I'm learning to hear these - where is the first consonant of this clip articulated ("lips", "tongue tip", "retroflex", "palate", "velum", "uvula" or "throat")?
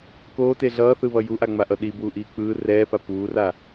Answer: velum